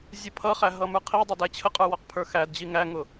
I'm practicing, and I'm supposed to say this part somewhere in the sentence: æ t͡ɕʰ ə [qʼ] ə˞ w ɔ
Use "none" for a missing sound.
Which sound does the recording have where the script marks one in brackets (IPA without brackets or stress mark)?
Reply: qʼ